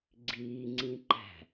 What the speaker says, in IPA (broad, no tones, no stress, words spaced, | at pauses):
ɡ͡ǀiːŋ͡ǀĩǃæ̤